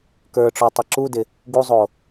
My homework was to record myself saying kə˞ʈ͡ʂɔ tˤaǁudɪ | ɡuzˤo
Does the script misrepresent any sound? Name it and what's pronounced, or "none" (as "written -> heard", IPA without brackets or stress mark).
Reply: none